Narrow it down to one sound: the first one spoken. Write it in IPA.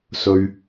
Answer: s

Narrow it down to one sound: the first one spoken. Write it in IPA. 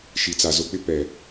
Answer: ʃ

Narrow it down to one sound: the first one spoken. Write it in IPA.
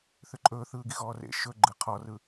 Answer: θ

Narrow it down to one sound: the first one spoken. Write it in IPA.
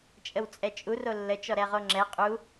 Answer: t͡ʃʼ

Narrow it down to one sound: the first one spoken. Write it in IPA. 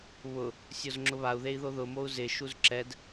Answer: β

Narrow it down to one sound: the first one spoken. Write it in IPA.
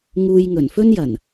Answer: ŋ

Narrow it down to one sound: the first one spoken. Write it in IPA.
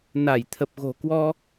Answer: n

